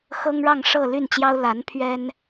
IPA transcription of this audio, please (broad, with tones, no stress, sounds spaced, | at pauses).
x ɤ˥ ŋ ɻ ɑ˥˧ ŋ ʂ ɤ˥˧ l y˥˩ n t͡ɕ j ɑ˥ ʊ̯ l a˧˥ n pʰ ɥ ɛ˥ n